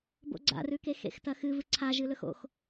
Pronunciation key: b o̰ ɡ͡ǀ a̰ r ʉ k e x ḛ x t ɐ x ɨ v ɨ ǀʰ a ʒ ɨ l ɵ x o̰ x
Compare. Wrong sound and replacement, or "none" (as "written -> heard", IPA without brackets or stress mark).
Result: none